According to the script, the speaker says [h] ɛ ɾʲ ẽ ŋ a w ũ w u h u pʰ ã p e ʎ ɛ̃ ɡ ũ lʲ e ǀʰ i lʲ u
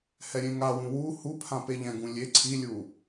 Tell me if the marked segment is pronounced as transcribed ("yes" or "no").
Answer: yes